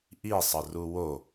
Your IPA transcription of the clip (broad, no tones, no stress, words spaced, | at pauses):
ʔisˤə ruwo